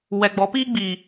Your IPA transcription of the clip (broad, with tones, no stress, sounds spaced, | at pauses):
w ɛ˨ ɡ͡b ɔ˨˦ p i˦ ɡ͡b i˨